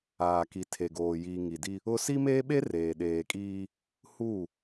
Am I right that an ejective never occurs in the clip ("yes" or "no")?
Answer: no